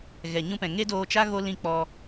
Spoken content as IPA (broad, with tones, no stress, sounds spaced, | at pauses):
ɣ ɛ˨ ɲ ũ˦ p ɛ̃˨ ŋ e˦ d oː˧ t͡ʃ a˦ ɣ o˦ l ĩ˦˨ k͡p ɔ˧